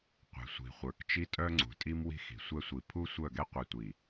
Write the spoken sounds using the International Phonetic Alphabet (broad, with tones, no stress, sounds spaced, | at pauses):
qʷ ɛ̤˨ sʷ i̤˨ χʷ ə˞˨ k t͡ʃ i˦ tʼ œ˦ ŋ͡ǀ ṳ˨ tʼ i˦ m w i̤˦ x i̤˨ sʷ ɛ˦ sʷ i˨ pʰ u˦ sʷ œ˦˨ ɡ ɛ˦ qʷ i˨ tʷ i˨